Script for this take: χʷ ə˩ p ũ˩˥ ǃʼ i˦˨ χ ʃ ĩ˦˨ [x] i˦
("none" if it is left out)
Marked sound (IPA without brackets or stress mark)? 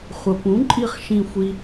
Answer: xʷ